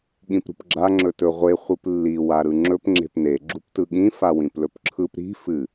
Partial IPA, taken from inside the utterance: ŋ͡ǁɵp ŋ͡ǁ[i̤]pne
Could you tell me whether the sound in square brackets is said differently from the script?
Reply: yes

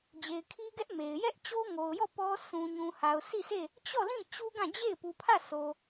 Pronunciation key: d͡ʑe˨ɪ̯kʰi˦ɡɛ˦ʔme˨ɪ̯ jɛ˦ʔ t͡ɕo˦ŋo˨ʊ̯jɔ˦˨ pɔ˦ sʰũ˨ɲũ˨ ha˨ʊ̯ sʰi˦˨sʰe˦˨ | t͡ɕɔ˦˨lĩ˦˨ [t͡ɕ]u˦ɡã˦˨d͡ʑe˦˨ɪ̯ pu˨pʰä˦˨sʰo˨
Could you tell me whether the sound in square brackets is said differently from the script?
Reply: no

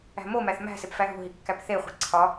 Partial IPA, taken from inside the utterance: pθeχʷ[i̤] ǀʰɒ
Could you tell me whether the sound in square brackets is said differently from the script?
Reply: no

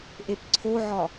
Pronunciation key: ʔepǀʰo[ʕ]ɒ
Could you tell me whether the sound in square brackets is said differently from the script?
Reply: no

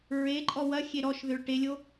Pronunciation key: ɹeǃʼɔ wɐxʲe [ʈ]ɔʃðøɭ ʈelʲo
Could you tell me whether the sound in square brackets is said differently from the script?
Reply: yes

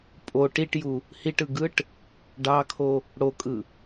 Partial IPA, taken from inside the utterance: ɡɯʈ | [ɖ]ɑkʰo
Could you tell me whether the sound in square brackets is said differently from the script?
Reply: no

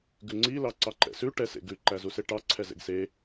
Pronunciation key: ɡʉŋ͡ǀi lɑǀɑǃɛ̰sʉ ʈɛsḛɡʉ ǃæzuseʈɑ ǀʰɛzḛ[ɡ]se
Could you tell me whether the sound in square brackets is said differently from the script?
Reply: no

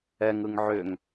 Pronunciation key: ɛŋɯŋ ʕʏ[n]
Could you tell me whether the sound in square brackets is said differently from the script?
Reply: yes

